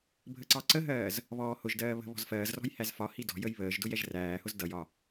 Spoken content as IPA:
bʱ ə ǀ ɑ ǀ ə ɦ ɜː z | β ɔː h ʊ ʒ d ɜː β ə̤ β ɔ̤ z f ɜː z r ɔ̤ j h æ z f ɒ h i d ɔ̤ j ə j β əː ʒ d ʊ j ɛ ʒ r æː h ʊ z d ʌ j ɒ

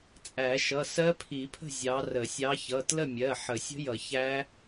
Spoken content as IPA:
t͡sʼ æ˨˩˦ ʃ ʌ˩˧˩ s ɜ˦˥ pʰ i˨˩˦ pʰ ə̤˥˨ zʲ ɑ˨˦ r ə˨˩˦ sʲ ɑ˨˦ ç ʌ˩˧˩ t l ə˥˨ mʲ ɜ˩˧˩ ħ ə˨˩˦ sʲ ə̤˦˥ j ʌ˨˩˦ ç æ˦˥

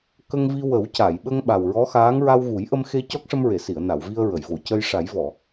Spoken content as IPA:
k ə˧ ŋ v i˧ w ə˨˩˦ w c a˨˩˨ j ɓ ə˧ ŋ ɓ a˨˩ w ɹ ɔ˧˥ x aː˧˥ ŋ ɹ a˧ w ɣ u˨˩˦ j ʔ ə˧ m x e˧ c ɔ˦˥ k̚ ʂ ə˧ m ɹ e˨˩˨ s i˨˩˨ ə̯ n a˨˩˨ w v i˧ ə̯ ɹ ə˨˩˨ j v o˨˩˨ c ə˧ j ʂ a˨˩˦ j v ɔ˨˩˨

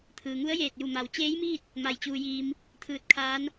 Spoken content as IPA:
t̪ʰ ɯː˩ ŋ u˧˥ ə̯ j eː˧˩ t̚ j u˧˩ m a˩ w t͡ɕ eː˧˥ j m iː˥˨ t̚ | m a˧˩ j t͡ɕ uː˧ j iː˧ m | t̪ʰ ɯː˧ t̚ kʰ aː˧˥ n

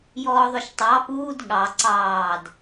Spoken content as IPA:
j ɔː ðˤ ʊ ʃ tˤ ɑ p uː d ɠ ɑ ǀ ɑː d

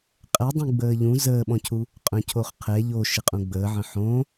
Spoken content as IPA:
qʼ ɛ dˤ ũ ɡ͡b əː ʎ ũ z əː ɓ ɔ̃ cʰ u | qʼ œ̃ cʰ o χ qʰ ɛ ʎ o ʃ ɪ qʼ ũ ɡ͡b əː ʕ ə̃ ħ õ

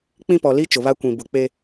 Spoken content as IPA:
k͡p ĩ˦ p ɔ˨ l i˦ t͡ʃ ʊ˨ β a˦ kʷ ĩ˨ b ʊ˨ k͡p e˦

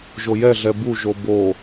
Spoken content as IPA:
ʒ o j ɛ ɮ ɛ b u ʒ o b o

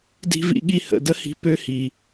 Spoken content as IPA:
d i̤˦ v ḭ˦ ɠ i˦ h ə̰˨ d ə˦ h i̤˧ p ø˦ h i˨

